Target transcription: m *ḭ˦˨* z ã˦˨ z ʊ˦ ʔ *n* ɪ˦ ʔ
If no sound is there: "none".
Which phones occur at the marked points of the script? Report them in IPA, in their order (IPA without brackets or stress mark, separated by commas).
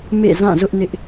ḛ˦˨, n